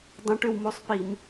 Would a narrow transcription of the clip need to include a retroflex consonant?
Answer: yes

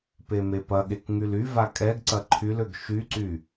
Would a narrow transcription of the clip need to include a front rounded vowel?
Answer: yes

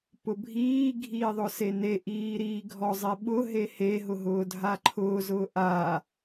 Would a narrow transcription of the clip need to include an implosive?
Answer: yes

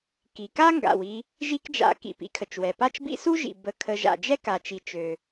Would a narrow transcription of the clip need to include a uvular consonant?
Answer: no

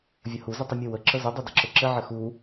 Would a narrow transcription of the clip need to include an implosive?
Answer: no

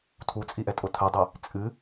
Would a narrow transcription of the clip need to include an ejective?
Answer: yes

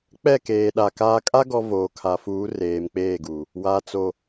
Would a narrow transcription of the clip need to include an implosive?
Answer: yes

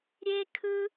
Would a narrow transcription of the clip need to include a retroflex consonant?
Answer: no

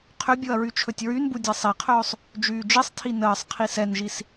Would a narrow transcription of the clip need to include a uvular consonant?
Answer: yes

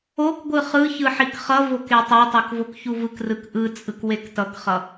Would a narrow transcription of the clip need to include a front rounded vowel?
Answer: no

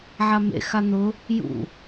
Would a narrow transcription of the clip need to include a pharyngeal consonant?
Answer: yes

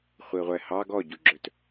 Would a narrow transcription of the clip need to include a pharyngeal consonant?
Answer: no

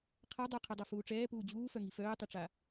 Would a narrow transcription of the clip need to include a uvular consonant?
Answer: yes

